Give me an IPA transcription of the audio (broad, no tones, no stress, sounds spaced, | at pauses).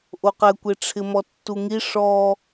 ʔ o q ɛ kʷ e ʈ͡ʂʰ ɪ m ɔ tː u ŋ i ʂ ɔ